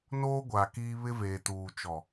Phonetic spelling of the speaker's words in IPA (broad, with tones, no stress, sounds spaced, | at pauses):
n oː˦ ɡʷ a˨ k iː˦ β ɪ˦ v eː˨ t uː˨ t͡ʃ ɔ˨